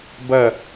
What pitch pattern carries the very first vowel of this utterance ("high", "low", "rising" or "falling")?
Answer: falling